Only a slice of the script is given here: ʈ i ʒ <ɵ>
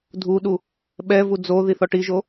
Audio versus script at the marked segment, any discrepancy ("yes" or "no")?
yes